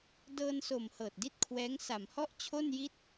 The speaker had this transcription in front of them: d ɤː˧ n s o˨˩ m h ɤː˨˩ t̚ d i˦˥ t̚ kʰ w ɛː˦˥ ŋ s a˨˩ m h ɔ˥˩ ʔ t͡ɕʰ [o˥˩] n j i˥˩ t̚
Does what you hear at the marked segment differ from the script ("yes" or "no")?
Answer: no